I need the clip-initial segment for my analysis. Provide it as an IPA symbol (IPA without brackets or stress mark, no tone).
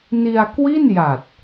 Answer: n